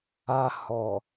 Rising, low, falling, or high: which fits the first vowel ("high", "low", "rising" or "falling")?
low